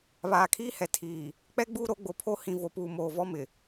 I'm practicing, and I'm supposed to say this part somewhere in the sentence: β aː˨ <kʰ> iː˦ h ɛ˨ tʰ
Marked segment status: correct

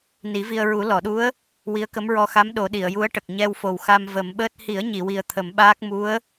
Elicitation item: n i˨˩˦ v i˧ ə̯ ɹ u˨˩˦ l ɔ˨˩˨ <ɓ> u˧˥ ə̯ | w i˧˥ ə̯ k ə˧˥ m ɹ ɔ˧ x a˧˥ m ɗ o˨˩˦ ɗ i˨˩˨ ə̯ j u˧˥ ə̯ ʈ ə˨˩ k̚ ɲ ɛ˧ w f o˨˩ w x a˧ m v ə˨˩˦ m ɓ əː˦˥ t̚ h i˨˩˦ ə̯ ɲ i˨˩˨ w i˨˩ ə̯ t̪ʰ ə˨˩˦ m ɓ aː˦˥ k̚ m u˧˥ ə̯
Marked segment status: incorrect: ɗ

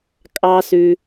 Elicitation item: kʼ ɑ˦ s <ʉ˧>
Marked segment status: correct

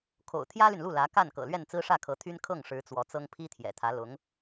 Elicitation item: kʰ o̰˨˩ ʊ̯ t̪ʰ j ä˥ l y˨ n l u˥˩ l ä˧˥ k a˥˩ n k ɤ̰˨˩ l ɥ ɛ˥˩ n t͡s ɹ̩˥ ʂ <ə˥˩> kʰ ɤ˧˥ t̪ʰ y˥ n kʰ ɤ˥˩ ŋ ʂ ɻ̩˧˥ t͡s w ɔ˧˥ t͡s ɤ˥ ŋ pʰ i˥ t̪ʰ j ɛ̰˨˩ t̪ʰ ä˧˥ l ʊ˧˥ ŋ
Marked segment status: incorrect: ä˥˩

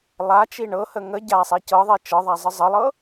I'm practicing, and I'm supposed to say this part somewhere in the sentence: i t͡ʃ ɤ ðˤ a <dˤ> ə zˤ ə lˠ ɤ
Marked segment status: incorrect: zˤ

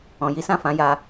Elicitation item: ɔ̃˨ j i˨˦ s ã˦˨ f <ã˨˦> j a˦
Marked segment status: correct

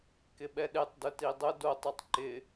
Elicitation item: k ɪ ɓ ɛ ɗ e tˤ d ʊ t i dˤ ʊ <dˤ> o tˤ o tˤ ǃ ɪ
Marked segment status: incorrect: d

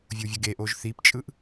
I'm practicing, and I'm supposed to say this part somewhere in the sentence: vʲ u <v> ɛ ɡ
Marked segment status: incorrect: vʲ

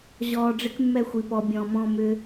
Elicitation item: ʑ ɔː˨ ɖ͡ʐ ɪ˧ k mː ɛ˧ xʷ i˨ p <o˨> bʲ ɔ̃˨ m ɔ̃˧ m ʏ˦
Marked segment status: incorrect: ɔ˨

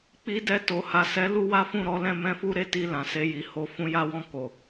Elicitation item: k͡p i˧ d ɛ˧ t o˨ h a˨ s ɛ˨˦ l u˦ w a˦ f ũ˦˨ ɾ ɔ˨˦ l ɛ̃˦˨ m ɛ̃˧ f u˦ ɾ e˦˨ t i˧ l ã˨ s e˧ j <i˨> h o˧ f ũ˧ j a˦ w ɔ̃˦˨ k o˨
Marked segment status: correct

